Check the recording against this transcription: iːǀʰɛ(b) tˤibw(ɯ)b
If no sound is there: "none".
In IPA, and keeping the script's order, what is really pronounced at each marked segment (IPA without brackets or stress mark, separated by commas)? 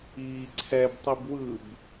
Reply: b, ɯ